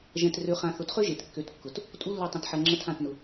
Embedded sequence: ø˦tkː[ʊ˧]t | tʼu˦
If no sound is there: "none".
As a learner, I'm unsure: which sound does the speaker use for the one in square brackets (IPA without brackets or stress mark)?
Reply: ʊ˧